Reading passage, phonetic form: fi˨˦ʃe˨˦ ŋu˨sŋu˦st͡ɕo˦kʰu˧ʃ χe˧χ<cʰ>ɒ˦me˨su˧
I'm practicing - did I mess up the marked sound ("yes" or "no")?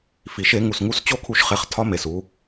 yes